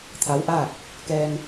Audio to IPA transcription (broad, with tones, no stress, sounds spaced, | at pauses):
t̪ʰ a˧˥ w ʔ aː˥˨ k̚ | k ɛː˧ ŋ